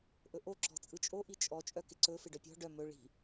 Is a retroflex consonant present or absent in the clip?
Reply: present